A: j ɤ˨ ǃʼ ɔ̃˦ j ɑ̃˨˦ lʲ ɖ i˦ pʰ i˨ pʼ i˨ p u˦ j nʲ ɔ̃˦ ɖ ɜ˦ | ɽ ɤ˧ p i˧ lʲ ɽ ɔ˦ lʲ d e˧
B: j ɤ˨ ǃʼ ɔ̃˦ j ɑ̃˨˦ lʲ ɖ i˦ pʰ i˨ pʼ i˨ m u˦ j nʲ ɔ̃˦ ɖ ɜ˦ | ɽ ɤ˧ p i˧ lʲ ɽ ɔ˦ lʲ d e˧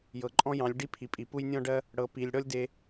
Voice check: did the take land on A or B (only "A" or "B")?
A